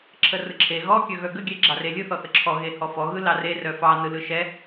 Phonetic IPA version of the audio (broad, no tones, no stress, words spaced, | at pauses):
ǁʰərɯǁʰe ɣɔ kʲœɣœɡə ɡʲɛɡ͡ǁɑrelʲɯ θɔθəǁʰɔ ɣehɔfɔ ɣɯlɑre rœfɑ nɯlɯʃɛ